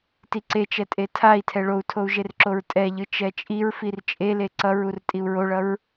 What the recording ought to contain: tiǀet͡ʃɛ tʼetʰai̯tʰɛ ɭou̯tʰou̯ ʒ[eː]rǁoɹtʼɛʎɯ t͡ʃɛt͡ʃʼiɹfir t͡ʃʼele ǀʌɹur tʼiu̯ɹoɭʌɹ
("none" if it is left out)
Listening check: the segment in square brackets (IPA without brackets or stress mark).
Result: e